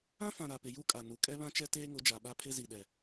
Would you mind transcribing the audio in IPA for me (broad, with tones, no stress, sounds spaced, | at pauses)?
ã˦ f ã˨ ɾ a˨ p ɪ˨ j u˦ kʼ a˨ n u˨ kʼ ɛ˦ β ã˦ t͡ʃ ɛ˦ t eː˦ ŋ ʊ˨˦ d͡ʒ a˨ ɓ a˦ pʰ ɪ˦ z i˨ ɗ ɛ˨